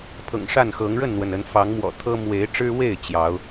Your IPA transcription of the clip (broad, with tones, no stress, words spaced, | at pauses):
pʰɤ̰˨˩ŋʂa˥˨nxɤ˨˦ŋ ɻə˥˨nn̪wə˩nə˨˦n fɑ˨˦ŋmwɔ̰˨˩ t̪ʰɤ˦ mwe˨˦ɪ̯ʈ͡ʂɻ̩˦we˥˨ɪ̯ t͡ɕjɑ˨˦ʊ̯